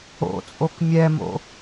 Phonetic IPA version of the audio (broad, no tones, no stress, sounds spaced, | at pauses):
o̰ t͡sʼ o k mʲ ɛ m o̰